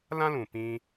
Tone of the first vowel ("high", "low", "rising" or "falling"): high